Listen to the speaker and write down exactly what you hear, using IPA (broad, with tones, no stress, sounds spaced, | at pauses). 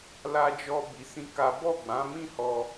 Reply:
l a˧ d͡ʒ ɔ˧ b i˧ s ĩ˦ k a˦ b ɔ˦˨ ɡ͡b ã˨˦ m ĩ˦˨ h ɔ˧